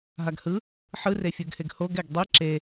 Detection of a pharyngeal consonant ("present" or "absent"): present